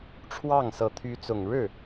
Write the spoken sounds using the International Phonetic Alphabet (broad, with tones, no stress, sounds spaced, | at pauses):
ʈ͡ʂʰ w ɑ˥˩ ŋ s ɤ˧˥ t̪ʰ y˧˥ t͡s ʊ˨˩ ŋ ɻ ɻ̩˥˩